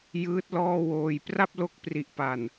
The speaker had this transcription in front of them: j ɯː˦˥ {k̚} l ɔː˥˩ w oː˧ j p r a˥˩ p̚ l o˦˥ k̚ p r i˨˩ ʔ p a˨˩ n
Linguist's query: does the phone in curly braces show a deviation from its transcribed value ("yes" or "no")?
yes